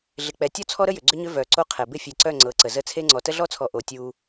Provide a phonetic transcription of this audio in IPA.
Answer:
ɮɪ˨k͡pɛ˨ tʲɔ˦t͡sʰɔ˦ɾə˦jʏ˨ ɡ͡ǀʏ˦ɲʏ˦ vœ˨ǀo˦qʰɛ˨ bɪ˦˨fʲe˨ǀœ˦˨ ŋ͡ǀɤ˨˦ǀə˨ zə˦˨t͡sʰe˦ ŋ͡ǀɔ˨tə˦ɮɔ˦t͡sʰɔ˨ ʔo˨tʲu˦

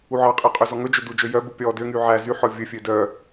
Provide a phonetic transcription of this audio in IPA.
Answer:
uʕɑqʼɛ qʼøzɔŋɵd͡ʒø dud͡ʒø jœbu pʲɔ døŋy ʕæ zyħɔ vʲɵfʲø dœ

